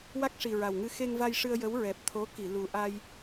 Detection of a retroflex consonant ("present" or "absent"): present